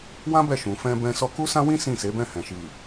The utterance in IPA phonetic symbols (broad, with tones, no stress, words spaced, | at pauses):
wã˦ bɛ˦˨ʃũ˨ fɛ̃˧bɛ̃˧ sɔ˧ku˦sã˦wĩ˦ sĩ˦˨se˨˦bɛ̃˦˨hɛ̃˨ ʃi˨